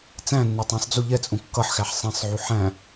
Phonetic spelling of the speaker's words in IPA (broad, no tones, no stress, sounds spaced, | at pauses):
t͡s æ̃ nː u tˤ æ̃ sˤ d͡z u ʎ ɛ t͡sʼ ũ kː ʌ ħ x æ ħ sˤ ɛ̃ sˤ ʕ u ħ æ̃